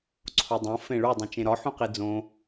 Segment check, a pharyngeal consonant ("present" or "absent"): present